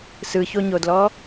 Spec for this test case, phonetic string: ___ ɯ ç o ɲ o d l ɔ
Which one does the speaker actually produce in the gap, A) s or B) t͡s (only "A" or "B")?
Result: A